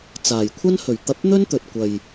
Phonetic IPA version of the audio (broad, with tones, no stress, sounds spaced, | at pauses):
t͡s aː˨˩ j kʷʰ ɐ˥ n h ɵ˨˩ ɥ t̪ ɐ˧ p̚ n̪ ɵ˥ n t̪ ɵ˨ t̚ kʷ ɐ˨ j